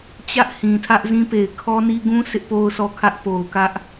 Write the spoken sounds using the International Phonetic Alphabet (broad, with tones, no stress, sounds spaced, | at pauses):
t͡ɕ ä˦ ʔ h ĩ˨ tʰ ä˦ ʔ z ĩ˦ p e˨ ɪ̯ kʰ ɔ˦ n i˦ ɡ ũ˦ s ɪ˦ ʔ p o˦ ʊ̯ s ɔ˦˨ kʰ ä˦ ʔ p o˨ ʊ̯ k ä˦ ʔ